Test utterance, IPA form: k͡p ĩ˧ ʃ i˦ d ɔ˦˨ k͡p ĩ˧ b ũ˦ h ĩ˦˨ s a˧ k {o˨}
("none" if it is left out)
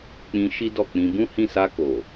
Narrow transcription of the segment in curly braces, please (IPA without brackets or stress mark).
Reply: o˨